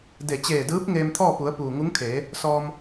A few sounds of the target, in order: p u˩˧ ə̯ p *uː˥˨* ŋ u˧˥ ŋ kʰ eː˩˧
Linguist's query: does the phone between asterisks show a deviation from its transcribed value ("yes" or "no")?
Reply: yes